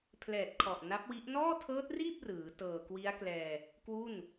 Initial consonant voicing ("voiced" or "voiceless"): voiceless